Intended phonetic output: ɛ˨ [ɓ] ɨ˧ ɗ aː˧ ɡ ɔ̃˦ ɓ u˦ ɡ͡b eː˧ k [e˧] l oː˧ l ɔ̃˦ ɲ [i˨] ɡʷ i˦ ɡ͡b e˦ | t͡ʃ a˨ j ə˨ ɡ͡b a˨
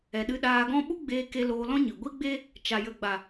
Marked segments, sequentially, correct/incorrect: incorrect, correct, incorrect

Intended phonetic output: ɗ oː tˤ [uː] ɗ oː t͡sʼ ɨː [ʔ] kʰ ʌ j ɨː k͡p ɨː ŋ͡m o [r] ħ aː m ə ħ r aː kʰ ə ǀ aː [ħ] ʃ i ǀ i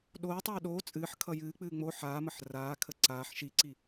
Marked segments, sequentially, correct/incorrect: incorrect, incorrect, incorrect, correct

